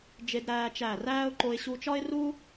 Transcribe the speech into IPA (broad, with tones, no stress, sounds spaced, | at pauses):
d͡ʒ e˦ d ɾ æː˦ t͡ʃ æ˦˨ r æː˧ ʊ̯ ǃ o˧ ɪ̯ ɕ u˧ t͡ʃ ɒ˦ ɪ̯ r u˦